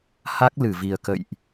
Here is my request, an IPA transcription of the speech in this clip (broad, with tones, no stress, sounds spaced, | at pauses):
h a˦˥ k̚ l ɨ˧˩ v i˨˩ ə̯ k ə̰˧˨ j ʔ